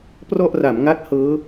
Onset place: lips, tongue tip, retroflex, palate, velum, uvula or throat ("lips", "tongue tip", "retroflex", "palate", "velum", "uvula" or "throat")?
lips